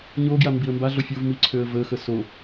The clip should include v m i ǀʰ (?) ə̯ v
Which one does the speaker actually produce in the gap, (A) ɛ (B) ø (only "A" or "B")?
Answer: B